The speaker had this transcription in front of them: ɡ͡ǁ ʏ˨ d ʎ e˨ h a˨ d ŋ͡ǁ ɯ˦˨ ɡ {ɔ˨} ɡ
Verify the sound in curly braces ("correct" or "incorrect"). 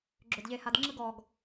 correct